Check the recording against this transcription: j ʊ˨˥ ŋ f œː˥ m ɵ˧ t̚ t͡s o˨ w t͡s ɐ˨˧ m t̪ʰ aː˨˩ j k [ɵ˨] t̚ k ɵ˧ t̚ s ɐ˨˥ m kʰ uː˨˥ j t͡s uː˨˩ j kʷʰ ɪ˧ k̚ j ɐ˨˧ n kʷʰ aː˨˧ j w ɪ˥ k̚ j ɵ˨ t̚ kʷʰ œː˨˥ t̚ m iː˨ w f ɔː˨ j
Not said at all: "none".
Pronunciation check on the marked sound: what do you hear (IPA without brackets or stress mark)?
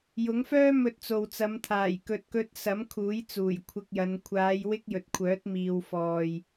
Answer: ɵ˨